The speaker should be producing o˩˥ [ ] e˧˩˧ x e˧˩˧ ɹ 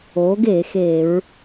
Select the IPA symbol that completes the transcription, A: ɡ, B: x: A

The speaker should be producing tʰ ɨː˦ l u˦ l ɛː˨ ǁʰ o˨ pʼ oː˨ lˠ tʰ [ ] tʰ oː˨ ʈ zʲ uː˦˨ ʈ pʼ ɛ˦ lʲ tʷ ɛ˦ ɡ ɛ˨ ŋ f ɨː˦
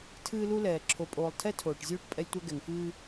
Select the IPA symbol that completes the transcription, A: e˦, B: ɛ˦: B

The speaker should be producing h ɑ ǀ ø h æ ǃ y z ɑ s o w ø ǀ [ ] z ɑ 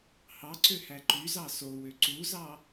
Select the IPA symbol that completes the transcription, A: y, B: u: B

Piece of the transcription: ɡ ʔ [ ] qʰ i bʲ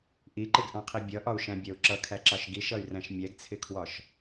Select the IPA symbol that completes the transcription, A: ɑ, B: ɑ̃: B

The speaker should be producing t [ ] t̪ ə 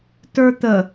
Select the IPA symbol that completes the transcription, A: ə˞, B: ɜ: A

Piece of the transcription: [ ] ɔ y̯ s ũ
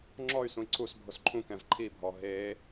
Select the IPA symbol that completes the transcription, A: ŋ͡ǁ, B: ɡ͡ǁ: A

